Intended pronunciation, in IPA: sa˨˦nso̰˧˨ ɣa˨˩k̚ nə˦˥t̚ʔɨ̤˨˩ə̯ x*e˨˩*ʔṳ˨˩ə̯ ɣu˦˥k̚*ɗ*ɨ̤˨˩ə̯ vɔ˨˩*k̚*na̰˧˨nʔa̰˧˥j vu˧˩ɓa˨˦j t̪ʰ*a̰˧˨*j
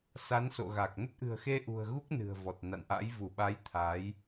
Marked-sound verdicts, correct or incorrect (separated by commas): incorrect, incorrect, incorrect, incorrect